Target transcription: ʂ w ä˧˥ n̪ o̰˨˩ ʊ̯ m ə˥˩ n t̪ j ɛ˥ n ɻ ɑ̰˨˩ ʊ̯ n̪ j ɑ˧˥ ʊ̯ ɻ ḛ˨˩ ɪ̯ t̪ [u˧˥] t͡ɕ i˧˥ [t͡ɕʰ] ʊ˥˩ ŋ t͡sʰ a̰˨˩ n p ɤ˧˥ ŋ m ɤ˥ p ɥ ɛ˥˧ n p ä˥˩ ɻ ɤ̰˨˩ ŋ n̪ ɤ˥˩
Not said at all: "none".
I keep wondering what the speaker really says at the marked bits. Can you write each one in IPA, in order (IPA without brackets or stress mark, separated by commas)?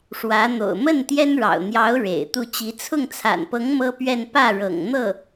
u˥˩, t͡sʰ